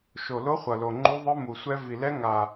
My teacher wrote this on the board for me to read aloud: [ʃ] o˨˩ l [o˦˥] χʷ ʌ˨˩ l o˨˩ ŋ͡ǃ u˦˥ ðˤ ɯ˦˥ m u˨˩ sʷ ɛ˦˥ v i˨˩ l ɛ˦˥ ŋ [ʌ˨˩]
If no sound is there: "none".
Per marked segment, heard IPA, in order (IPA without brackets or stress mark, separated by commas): ʃ, o˦˥, a˨˩